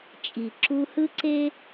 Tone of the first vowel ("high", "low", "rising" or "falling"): low